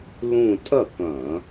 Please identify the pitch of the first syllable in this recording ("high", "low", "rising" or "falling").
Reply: falling